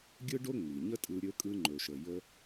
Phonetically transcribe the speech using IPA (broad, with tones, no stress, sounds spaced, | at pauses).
ɡʲ ɯ˥ ɖ o˥ ŋ͡m i˩ ɲ ə˥ tʼ ɯ˧ ɾʲ ɵ˧ kʼ ɯ˧ ŋ͡ǃ ɵ˩ ʃ ə˩ j ə˧